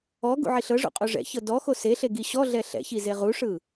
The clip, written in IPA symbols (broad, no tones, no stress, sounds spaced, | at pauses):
ɔ ɡ ṵ ʕ i ɬ ɤ ʐ ṵ qʼ o ʐ ɛ̰ ç ɤ d ɔ x o s e ɬ e ɡ i ɕ ɔ ɮ ɛ ɬ ɛ̰ ç i z e ʁ u ʂ ɯ